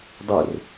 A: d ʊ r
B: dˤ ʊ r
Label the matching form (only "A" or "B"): B